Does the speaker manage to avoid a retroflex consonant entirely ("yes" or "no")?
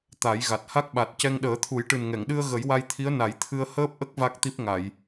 no